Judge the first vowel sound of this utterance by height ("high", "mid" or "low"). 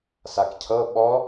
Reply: low